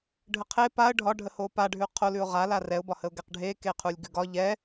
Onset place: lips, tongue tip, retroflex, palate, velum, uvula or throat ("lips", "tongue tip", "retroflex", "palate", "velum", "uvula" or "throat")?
retroflex